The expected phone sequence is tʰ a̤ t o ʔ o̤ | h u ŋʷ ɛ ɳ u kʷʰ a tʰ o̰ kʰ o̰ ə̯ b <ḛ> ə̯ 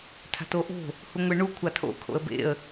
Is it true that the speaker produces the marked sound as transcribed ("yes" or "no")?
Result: yes